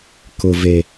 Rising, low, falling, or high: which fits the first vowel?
low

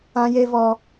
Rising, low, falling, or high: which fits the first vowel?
high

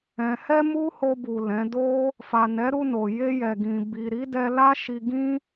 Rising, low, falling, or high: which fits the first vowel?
low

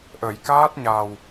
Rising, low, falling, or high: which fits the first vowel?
low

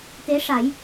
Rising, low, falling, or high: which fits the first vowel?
rising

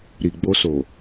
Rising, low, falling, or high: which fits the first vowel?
low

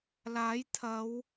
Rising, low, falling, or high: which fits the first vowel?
rising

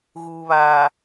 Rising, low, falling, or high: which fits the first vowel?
low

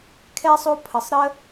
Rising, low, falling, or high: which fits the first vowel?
high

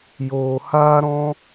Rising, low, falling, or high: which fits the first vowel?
low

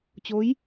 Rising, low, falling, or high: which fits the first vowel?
rising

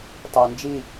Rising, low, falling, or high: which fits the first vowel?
low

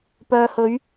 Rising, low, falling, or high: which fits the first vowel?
low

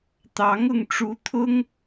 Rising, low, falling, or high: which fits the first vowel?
rising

